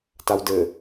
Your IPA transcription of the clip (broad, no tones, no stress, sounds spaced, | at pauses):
t a w d ɘ